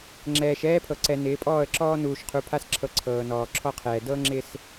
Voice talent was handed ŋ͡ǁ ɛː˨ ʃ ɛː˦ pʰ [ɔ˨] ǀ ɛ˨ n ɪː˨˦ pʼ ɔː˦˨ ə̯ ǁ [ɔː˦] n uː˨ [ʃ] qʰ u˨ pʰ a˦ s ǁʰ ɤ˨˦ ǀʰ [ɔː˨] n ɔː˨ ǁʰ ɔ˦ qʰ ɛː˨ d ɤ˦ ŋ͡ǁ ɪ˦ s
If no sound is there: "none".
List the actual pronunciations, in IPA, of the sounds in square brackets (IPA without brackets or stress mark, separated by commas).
ɤ˨, ɔː˦, ʃ, ɤː˨